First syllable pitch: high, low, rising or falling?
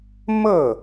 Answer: falling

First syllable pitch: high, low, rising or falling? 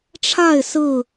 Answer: falling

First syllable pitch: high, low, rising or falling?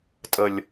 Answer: low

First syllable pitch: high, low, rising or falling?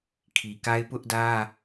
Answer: low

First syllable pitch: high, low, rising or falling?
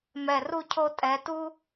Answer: low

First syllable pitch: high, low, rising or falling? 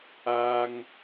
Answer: low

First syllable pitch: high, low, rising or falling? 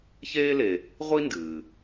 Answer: high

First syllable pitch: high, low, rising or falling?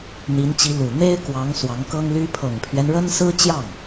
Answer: rising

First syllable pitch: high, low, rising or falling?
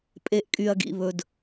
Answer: low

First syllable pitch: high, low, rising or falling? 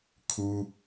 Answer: high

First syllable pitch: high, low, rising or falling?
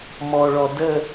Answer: low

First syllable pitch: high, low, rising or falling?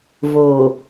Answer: low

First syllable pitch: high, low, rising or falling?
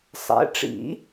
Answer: rising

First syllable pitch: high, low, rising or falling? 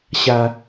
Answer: low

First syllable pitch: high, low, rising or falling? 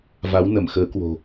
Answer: rising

